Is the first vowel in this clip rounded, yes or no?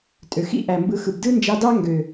yes